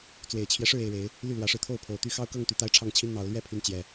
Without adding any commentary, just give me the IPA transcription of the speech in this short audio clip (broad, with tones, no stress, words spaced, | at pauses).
t͡swe˨˩ɪ̯t͡ɕʰjɛ˦ʂɻ̩˥˨ e˥˨ɪ̯ɻe˨˦ɪ̯ | ly˥˨lwä˨˦ʂɻ̩˧ t̪ʰo˥˨ʊ̯pʰo˨˩ʊ̯t̪y˥˨ xɑ˥˨ʊ̯kɤ˥˨ŋt̪y˨˩ t̪a˦ɪ̯ʈ͡ʂʰɑ˥˨ŋt͡ɕʰi˦n n̪ɑ˨˦ʊ̯ lɥɛ˥˨pʰy˨˦n t͡ɕjɛ˨˩